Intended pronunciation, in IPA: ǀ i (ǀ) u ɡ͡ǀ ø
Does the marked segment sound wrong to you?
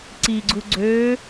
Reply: yes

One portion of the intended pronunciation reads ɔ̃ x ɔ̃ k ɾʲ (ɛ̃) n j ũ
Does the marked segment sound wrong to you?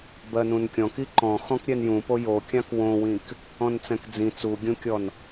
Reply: yes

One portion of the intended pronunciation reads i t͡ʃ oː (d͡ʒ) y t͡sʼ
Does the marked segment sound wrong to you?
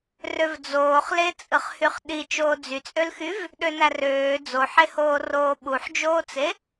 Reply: yes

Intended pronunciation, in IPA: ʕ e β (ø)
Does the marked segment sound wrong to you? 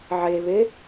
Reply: yes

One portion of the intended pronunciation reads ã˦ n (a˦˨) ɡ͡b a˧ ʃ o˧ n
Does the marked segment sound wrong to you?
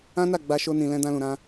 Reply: no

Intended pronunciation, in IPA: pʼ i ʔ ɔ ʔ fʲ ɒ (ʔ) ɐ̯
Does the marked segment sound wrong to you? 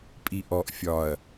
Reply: yes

